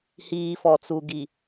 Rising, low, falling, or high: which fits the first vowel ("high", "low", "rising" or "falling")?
low